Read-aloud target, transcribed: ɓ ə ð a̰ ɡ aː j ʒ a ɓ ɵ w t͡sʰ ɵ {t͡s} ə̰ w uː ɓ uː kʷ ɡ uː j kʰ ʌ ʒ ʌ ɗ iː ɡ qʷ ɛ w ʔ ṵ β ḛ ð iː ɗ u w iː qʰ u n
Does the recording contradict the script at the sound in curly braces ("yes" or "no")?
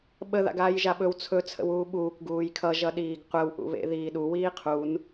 yes